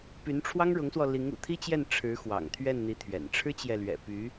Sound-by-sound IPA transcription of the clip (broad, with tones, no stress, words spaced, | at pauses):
py˧˥nʈ͡ʂʰwɑ˥ŋɻʊ˧˥ŋswɔ˧ li˧˥ŋṵ˨˩t̪ʰi˥t͡ɕjɛ˥˩n ʈ͡ʂʰɻ̩˧˥ xwɑ̰˨˩ŋt̪ʰɥɛ˥˩nn̪i˧˥t̪ʰɥɛ̰˨˩n ʈ͡ʂʰɻ̩˥t͡ɕjɛ˨lɥɛ̰˨˩py˧˥